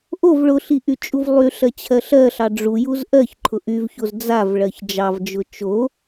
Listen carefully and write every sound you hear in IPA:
ʔ o v ɭ ʊ ɬ i ʔ y t͡ʃʼ u v lˠ y ɬ ɜ t͡ɕʰ ɜ ɬ ɜ ɬ ɑ ɖ͡ʐ u j u z ʔ ɜ ç ǃʰ ʊ ʔ y v ç o z d͡z a v ɭ ɜ ç d͡ʒ ɑ v d͡ʒ ʊ t͡ʃ o

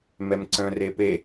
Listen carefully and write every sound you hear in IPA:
m ɛ m ǀ œ̃ r e p e

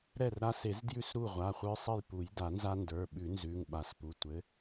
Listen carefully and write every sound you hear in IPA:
ɾ ɛ˥˩ r ɾ a˦ s e˨˩˦ z d j ʉ˥˩ s ɾ u˥˩ ʁʷ a˩˧˩ χʷ ə˞˦ sˤ ɘ˥˩ j p u˨˩˦ j d a˨˩˦ n z a˦ n d ə˞˩˧˩ ɓ ʉ˨˩˦ n z ʉ˩˧˩ ŋ ɓ a˨˩˦ s p u˩˧˩ tʷ ɘ˨˥

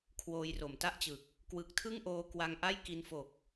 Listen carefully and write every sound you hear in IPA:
kʰ w oː˧ j r o˨˩ m t a˥˩ ʔ t͡ɕ ɯ˨˩ k̚ | k w ɯ˨˩ k̚ tʰ ɯ˥˩ ŋ ʔ oː˧ k w a˧ ŋ ʔ a˥˩ j k i˧ n f o˨˩ k̚

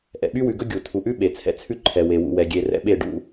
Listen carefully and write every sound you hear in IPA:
ʔ ɛ̰˨ ɓ y˦ w ʉ˨ ɡ ɵ˦ ɡʲ u˨ tʰ u˨ ʔ ʉ˦ ɓ e˨ t͡sʰ ɛ̰˦ t͡sʰ ʉ˦ ǃʰ ɛ˨ w e˨ w ṵ˨ w ɛ˨ ɡʲ e˨ r ɛ̰˦ ɓ e˦˨ ɖ ṵ˦

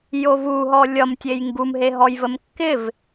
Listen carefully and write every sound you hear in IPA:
j o v u ɦ ɔ lʲ ʌ m tʲ e j ŋ ɡ u m ɦ e ɦ ɔ j v ə m kː ɪ v

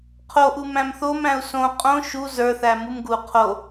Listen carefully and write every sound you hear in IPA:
qʰ o ʔ u m æ̃ m θ o m æ̃ u̯ s õ qʼ õ ʃ u z ə˞ θ æ m u m ɡ u qʰ o

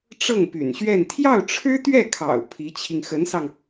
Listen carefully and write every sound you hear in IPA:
ʈ͡ʂ ɤ˥˩ ŋ p y̰˨˩ n ɕ ɥ ɛ˥˧ n t̪ʰ j ɑ˥˩ ʊ̯ ʈ͡ʂʰ ɻ̩˥ t̪ ɥ ɛ˥˩ kʰ ɑ̰˨˩ ʊ̯ pʰ i˧˥ t͡ɕʰ i˧ ŋ x ə˧˥ n s ɑ˧ ŋ

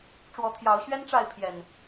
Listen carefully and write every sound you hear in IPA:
ʈ͡ʂ w ɔ˨˦ t̪ʰ j ɑ˨˦ ʊ̯ ɕ ɥ ɛ˦ n ʈ͡ʂ a˥˨ ɪ̯ pʰ j ɛ˨˩ n

